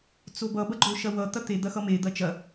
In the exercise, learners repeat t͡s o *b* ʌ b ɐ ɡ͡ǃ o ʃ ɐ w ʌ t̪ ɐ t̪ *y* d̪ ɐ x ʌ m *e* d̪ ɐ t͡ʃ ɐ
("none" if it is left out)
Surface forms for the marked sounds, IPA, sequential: b, e, e

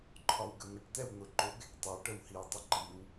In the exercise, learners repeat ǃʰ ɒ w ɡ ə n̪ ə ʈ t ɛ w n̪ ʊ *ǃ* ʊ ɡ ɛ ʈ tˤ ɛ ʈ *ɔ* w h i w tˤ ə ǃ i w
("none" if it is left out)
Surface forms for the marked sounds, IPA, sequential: ǃ, ə

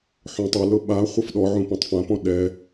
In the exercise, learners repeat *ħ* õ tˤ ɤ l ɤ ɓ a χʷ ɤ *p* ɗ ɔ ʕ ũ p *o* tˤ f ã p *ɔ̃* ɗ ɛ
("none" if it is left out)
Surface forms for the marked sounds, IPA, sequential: ħ, f, õ, ɔ̃

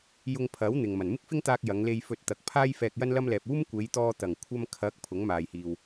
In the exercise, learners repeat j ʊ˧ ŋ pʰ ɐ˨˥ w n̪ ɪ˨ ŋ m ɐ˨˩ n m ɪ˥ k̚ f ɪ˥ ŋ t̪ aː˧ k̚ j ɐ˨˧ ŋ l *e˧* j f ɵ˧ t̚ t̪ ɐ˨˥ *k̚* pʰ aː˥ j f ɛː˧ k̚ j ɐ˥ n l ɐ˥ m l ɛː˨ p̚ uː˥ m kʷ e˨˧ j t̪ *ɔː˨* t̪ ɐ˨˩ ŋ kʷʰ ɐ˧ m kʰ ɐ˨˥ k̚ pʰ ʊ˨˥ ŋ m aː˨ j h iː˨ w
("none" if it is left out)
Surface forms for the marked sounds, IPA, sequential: e˧, k̚, ɔː˧

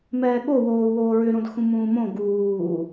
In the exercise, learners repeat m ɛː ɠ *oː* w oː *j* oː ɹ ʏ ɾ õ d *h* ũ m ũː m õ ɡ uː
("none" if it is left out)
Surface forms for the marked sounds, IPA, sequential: o, w, x

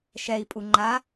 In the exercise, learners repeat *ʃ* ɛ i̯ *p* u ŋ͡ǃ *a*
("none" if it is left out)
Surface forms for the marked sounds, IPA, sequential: ʃ, pʼ, a

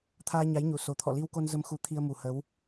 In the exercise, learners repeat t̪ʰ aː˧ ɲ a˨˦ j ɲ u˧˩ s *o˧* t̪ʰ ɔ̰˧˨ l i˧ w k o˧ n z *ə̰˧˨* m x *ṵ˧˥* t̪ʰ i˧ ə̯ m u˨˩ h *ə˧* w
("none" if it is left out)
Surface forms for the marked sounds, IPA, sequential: o˨˩, ə˧, u˨˦, ə˨˦

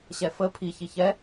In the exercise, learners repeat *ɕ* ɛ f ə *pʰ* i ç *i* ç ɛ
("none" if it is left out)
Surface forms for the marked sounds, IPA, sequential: ɕ, pʰ, i

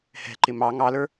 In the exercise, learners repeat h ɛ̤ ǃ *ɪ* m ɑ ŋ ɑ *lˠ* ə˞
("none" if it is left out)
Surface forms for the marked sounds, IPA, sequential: ɪ, l

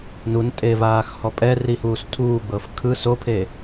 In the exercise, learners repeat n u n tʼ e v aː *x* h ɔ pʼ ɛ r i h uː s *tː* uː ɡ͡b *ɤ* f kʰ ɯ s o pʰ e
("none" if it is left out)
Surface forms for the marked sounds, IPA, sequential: x, tʰ, ɤ

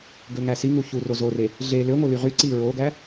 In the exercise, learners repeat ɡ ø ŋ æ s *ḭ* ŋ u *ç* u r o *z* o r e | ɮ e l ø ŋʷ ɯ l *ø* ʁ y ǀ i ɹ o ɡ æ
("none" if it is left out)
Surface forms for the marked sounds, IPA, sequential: i, ç, z, y

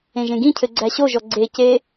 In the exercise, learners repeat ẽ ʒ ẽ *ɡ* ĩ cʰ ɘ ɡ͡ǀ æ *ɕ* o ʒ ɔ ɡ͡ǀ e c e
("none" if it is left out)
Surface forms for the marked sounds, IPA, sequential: ɡ, ɕ

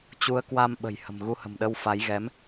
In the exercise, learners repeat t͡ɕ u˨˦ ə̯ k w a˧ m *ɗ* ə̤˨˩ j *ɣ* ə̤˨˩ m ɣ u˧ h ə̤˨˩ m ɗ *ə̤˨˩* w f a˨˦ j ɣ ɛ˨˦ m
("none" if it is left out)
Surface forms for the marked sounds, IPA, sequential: ɓ, h, ə˧

